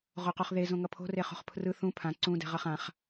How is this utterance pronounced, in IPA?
ʁ o q o χ ð e z õ ŋ ʌ pʰ o̤ r e χ o̤ χ pʰ r ɯ θ ũ pʰ ã ǀ ũ d ɛ̤ ʁ ʌ χ ã χ

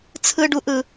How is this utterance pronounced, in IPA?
t͡sʰ ɯ˦ ɖ u˦ ʔ ɯ˦

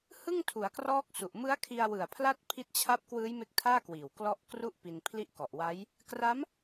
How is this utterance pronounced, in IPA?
h ɯ˥˩ ŋ tʰ u˩˦ a̯ k r ɔː˦˥ k̚ s u˨˩ ʔ m ɯ˦˥ a̯ kʰ i˧ a̯ w ɯ˨˩ a̯ pʰ l a˥˩ t̚ pʰ i˦˥ t̚ t͡ɕʰ a˦˥ p̚ k w ɯː˦˥ j m e˦˥ k̚ tʰ aː˥˩ k w iː˨˩ w k l ɔ˦˥ ʔ k r u˥˩ ʔ p i˧ n pʰ l i˦˥ ʔ k ɔ˨˩ ʔ w a˦˥ j | k r a˦˥ m

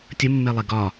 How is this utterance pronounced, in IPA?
tʲ ə mː e lˠ ɛ ɡ ɒ

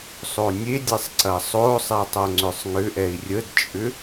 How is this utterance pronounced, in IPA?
sˤ o nʲ e dʲ e sˤ ǀ ɐ sˤ o sˤ ɛ tˤ o ŋ͡ǀ ʏ sˤ ŋ ʏ ʔ ɛ i̯ rʲ ə d t͡ʃʼ ʏ

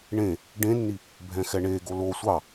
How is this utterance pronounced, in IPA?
ɳ ẽ | ɖ ẽ nː i | bʱ ɛ̃ x ɛ ɳ e ɡ o l o sʷ ɑ

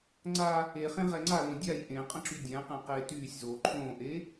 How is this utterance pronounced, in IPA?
ŋ͡ǀ a | e χ ẽ ʁ ɛ ŋ͡ǀ a l õ dʲ a j ʔ ẽ qʼ ə̃ ǁ y dʲ æ̃ q ẽ q eː t yː sʲ z oː ǃʰ õː ʔ e

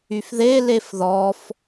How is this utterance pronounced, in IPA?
y f ð e l e f ð ɔ f

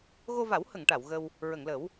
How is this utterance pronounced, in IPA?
ɣ o˧ v a˨˩˦ w h ə˨˩˨ ŋ ʈ a˨˩˨ w ɣ ə˧ w | ɹ ə˨˩˨ ŋ l ə˨˩˦ w

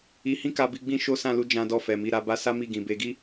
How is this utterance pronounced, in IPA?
i˧ h ĩ˦ k a˧ b i˧ ɡ͡b ĩ˦ ʃ o˦ s ã˦˨ l u˧ d͡ʒ ã˧ d ɔ˧ f ɛ˨ m i˧ ɾ a˧ b a˦ s a˦ m i˦˨ ɡ ĩ˧ b e˦ ɡ i˦

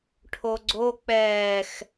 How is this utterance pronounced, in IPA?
ʈʰ o ɡ͡ǀ o k͡p ɛː x

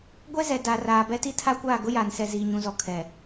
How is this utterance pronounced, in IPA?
ɡʷ ɛ˦ z ɛ˨ d a˨ r aː˨ b ɛ˦ t i˦ tʰ a˦ kʷ aː˦˨ ɡ ʊ˦ j aː˨ n s ɛ˨ z iː˨ ɲ ũ˨ z ɔ˨ kʰ ɛ˨

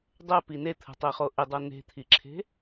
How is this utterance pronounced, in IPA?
dˤ ɛ p i n e t̪ʰ ə̤ tˤ e χ o ʔ ɪ dˤ ɤ n e̤ t̪ʰ i ǁʰ e̤

